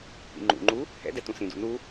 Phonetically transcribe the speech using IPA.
p ḭ ŋ͡ǃ ṵ ŋ͡ǃ u | h ɛ̰ d ɛ t ũ s ĩ d ṵ n u

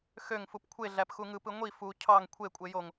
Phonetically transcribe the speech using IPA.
x ø ŋ f u p kʷʰ e ɮ æ p x u ŋ ɯ p ɯ ŋʷ i f u cʰ ɑ ŋ kʷʰ e kʷʼ e j o ŋ

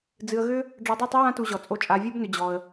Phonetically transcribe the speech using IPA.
d͡z ɨ˧ ə̯ ɣ ʏ˦ | ɖ͡ʐ ɔ˧ dˤ y˦˨ tˤ ʏ˦ w ã˦ t u˧ ʑ ɔ˨ t͡sʼ o˧ t͡ʃʼ a˧ vʲ o˦ b n ʏ˧ d͡ʑ ɔ˧ ə̯

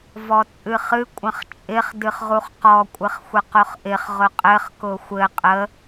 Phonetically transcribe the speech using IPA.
v ɔ t͡sʼ ɨ χ ɨ kʷʼ ə̃ χ t͡ʃʼ ɪ χ d ɨ χ ʁ u χ q ɔ kʷʼ ɘ χ xʷ ə q ʊ χ ʔ ɪ χ ʁ ʊ qʼ ɘ χ k ʊ xʷ ɘ qʼ ə

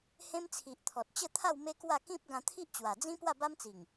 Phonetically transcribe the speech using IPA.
h ẽ˦ m t͡sʰ i˨ ʔ t̪ʰ ɔ˨ t̚ t͡ɕ ə˥˧ t̪ʰ a˥˧ w m e˦ k w a˥˧ k ĩ˦ p̚ ɡ ã˧ t̪ʰ i˦ ʔ t͡ɕ w a˨˩ d͡z ĩ˦ p w a˥˧ b a˦ m t͡s i˨˩ ŋ

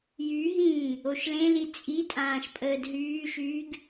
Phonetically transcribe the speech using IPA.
j y ɦ ĩː | o ʃ l ẽ l i t͡sʼ i tʼ ãː ʃ pʼ əː d ɦ yː ʃ yː ɡ

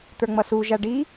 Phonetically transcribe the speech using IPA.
t̪ ə˞ ŋ͡m ʌ s u ʒ a ɖ i

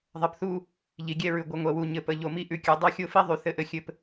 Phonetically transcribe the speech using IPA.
ðˤ ɘ˨ p θ u˦ | ʎ i˨ ɡʲ ɛ˦ ɹ ʉ˨ ɡʷ ə˨˦ ŋʷ ɛ˨ w u˨ ɲ ɘ˨ p ə˨ ʎ o˨ m i˦ ʔ ʉ˨ kʲ u˨ dˤ o˦ xʲ o˦ f i˦ ðˤ y˨ θ ɘ˦ ʔ ɘ˦ xʲ ɘ˦ p

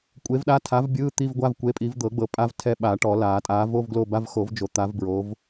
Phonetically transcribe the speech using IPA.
kʷʼ e˨˥ v ɗ a˧˥˧ tʰ a˨˥ v bʲ ɯː˧˥˧ t̪ i˧˥˧ v ɡʷ a˧˥˧ v kʷ e˨˥ pʼ i˨˩˦ v d̪ ɤ˨˩˦ ɡ͡b ɤ˨ pʼ a˦˥ v tʰ ɛ˦˨ ɓ a˨˩˦ ʈ ɔ˨˩˦ l aː˨˩˦ tʼ aː˨˥ v o˧˥˧ v ɡ l o˦˨ b a˧˥˧ v x o˨˩˦ v d͡ʒ o˨˩˦ t̪ a˨˥ v b ɹ o˨˥ v

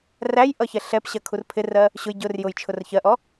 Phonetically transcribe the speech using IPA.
r æ j ʔ ʌ ç ɛ ɬ ɛ p ɕ ɜ kʰ u r pʰ ɪ r ɜ | ɕ ʊ j ɟ ʊ r j ʊ j t͡ʃʰ ʊ r ç ɜ ʔ ɔ

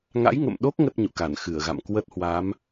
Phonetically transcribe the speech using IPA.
ŋ a̰˧˥ j ŋ ə̰˧˨ m ɗ o˦˥ k̚ ŋ ə˦˥ t̚ ɲ ṵ˧˨ k a˧˩ n x ɨ˧˩ ə̯ ɣ a̰˧˨ m k w ə˦˥ t̚ h w a˨˦ m

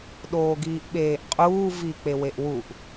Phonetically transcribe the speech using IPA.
ɗ oː ɡ iː ʔ ɓ eː ʔ qʼ uː v i k͡p e w e ʔ w u ʔ

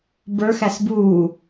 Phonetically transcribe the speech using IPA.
b ə˞ x æ s b uː

